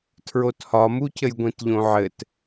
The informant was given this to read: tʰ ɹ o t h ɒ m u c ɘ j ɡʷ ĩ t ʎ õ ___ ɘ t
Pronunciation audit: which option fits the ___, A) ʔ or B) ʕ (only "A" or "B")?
B